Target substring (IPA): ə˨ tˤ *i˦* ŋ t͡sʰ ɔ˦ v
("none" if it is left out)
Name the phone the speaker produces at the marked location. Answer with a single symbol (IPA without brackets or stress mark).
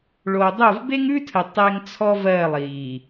e˦